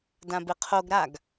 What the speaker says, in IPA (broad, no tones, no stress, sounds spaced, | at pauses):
d ã b ɪ qʰ o ɡ ɾ a ɡ